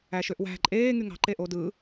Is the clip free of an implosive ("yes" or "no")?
yes